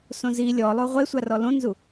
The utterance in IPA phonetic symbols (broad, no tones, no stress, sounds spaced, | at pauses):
s õ z i lʲ ɔ lˠ o ʁʷ e sʷ a r ɔ l õ n z u